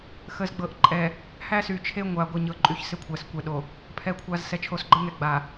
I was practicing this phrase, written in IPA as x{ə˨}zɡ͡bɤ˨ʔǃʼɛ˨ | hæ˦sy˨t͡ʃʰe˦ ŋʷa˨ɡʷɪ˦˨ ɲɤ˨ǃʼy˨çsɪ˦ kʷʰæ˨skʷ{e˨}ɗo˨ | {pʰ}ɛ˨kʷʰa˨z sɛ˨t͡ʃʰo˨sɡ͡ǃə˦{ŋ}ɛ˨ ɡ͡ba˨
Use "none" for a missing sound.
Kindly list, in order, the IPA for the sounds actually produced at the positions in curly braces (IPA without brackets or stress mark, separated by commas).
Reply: ə˨, ɛ˨, pʰ, ŋ